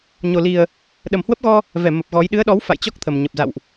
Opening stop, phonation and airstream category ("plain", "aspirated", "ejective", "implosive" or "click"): implosive